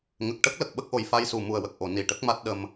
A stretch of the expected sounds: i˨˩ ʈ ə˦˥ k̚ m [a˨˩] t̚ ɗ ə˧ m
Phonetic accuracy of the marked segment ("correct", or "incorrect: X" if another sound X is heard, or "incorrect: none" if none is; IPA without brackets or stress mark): incorrect: a˦˥